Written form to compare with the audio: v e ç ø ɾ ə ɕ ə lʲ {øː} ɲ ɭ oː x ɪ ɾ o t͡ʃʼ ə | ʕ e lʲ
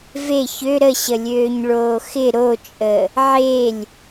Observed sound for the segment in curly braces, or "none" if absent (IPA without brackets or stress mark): øː